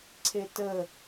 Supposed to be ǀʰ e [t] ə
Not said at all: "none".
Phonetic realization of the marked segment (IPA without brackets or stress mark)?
t